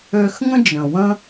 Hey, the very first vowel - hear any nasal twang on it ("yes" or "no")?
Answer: no